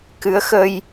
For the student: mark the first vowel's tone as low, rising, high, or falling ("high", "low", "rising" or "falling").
rising